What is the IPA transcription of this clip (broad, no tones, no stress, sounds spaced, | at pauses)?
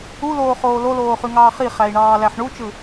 u l oː χ oː l o l oː χ y ŋ ɑː χ i χ æ i̯ ɳ ɑː l æ ħ ɳ u t͡ʃ ɯ